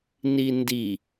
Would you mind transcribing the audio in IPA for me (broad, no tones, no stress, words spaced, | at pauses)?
nindi